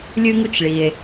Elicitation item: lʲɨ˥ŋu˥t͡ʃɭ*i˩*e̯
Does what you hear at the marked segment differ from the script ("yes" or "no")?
no